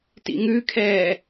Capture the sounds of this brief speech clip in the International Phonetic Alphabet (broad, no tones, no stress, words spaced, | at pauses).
tḭŋʉkʰɛː